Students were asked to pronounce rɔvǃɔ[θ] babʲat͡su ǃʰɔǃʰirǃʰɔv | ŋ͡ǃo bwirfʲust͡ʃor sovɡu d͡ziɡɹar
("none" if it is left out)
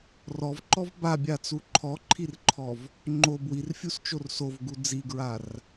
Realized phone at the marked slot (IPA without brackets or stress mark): v